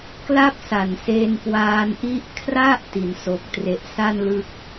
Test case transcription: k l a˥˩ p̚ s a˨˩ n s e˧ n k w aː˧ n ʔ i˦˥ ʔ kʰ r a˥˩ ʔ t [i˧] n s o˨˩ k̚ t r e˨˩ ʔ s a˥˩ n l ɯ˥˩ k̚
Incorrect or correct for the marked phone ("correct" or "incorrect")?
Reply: incorrect